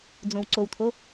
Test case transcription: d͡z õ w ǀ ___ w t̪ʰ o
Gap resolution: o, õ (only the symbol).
o